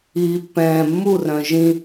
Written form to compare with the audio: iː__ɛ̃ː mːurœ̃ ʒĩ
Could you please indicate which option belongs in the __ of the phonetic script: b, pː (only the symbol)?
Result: pː